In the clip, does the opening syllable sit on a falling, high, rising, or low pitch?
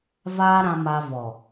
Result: high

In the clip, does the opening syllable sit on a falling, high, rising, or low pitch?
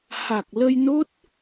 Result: low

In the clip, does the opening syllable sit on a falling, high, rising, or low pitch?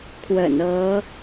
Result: low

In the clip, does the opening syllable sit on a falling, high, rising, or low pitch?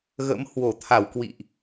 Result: rising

